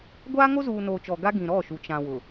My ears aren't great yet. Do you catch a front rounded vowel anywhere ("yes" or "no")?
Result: no